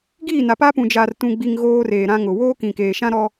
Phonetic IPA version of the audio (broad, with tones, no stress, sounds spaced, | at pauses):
ɡ iː˦˨ n a˨ p a˦ p ũ˨ d͡ʒ aː˨ r t ũ˨ ɡ͡b i˨ ŋ ɣ oː˦ r eː˨ ɾ ã˦ ŋ ʊ˨ w oː˦ k ĩ˨ k eː˨ ʃ ã˦ ɾ ɔ˦